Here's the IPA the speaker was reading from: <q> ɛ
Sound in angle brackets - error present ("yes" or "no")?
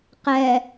no